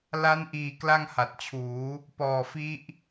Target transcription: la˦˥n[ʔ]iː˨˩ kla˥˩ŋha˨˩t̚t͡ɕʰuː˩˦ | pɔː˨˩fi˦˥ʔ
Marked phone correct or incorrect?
correct